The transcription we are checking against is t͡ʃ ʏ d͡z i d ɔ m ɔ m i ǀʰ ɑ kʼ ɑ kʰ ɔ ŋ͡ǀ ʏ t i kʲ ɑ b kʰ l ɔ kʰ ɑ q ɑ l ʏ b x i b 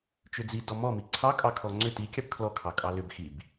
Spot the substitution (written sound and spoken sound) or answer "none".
q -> kʼ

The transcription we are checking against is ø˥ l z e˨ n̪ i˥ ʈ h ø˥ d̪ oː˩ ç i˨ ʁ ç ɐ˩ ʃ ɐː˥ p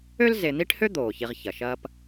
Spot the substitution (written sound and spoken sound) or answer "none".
none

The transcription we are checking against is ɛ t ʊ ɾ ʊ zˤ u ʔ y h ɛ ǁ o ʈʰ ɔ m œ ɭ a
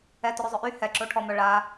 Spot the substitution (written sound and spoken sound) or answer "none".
u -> ʊ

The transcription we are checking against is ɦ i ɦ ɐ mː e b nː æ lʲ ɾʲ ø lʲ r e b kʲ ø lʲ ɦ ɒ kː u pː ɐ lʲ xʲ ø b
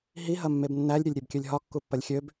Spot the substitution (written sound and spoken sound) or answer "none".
r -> ɾʲ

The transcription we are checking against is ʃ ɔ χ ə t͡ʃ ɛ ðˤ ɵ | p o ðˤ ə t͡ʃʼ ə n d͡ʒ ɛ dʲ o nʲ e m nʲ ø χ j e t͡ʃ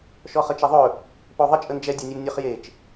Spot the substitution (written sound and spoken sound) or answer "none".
none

